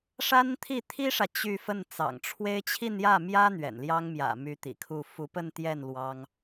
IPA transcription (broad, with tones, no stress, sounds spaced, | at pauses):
ʂ a˥ n t̪ʰ i˥˩ t̪ʰ i˥ ʂ ä˨ t͡ɕ y˥˧ f ə˥˩ n t͡s ɑ̰˨˩ ŋ ʈ͡ʂʰ w e˥ ɪ̯ t͡ɕʰ i˥˧ n j ä˥˩ m j ä˥ n̪ ɥ ɛ̰˨˩ n l j ɑ˥ ŋ m j ä̰˨˩ m y˧˥ t̪ ḭ˨˩ kʰ u˥˩ f u˧˥ p ə˥˧ n t̪ j ɛ˥˩ n l w ɑ˥ ŋ